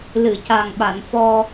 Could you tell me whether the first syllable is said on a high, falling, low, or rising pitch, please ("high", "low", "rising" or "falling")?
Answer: low